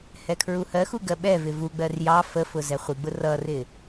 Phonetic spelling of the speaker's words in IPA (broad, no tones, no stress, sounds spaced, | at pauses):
h ɛ kʰ ɹ u h ɜ x u ɡ ɜ ɓ ɛ v ɪ v u ɡ͡b ɜ r j ɑ f ə f ʊ z ɛ χʷ i ɡ͡b ʊ r ʌ r ɪ